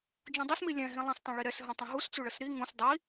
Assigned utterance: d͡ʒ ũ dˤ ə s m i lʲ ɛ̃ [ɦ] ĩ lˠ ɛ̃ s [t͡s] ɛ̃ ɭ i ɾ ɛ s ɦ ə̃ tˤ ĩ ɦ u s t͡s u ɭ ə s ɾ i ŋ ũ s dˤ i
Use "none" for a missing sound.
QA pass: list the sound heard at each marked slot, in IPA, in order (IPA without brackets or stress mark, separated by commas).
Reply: ɦ, tˤ